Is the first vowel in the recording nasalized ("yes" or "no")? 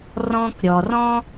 yes